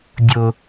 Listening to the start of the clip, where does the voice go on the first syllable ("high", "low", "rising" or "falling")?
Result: high